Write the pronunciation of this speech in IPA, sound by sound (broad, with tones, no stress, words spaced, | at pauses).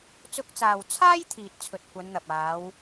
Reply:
t͡sʊ˧k̚t͡saː˨wt͡sʰaː˥j t̪ʰiː˨t̚t͡sʰɵ˨t̚ kʷɐ˨˧nn̪ɐ˨p̚ aː˨˧w